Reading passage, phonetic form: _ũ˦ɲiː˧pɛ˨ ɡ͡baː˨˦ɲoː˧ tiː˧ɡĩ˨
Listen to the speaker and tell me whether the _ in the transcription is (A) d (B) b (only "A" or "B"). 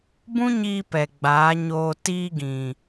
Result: B